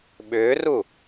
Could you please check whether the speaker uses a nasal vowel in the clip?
no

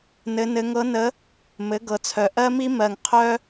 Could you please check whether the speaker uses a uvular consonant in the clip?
yes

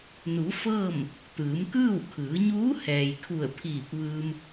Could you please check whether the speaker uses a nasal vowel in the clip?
no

